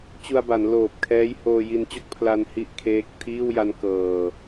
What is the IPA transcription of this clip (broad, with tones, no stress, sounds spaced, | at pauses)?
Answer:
t͡ɕ u˧ a̯ b a˩˦ n l oː˨˩ p̚ kʰ ɛː˦˥ j h oː˧ j i˧ n t͡ɕ o˥˩ k̚ pʰ l a˧ n h i˥˩ ʔ kʰ eː˦˥ k̚ tʰ iː˥˩ w j a˦˥ n k ɤː˧